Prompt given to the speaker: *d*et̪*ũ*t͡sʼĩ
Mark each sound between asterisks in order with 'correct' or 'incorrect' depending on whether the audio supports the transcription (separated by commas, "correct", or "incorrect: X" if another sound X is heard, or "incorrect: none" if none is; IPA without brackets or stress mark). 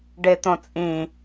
incorrect: ɖ, incorrect: õ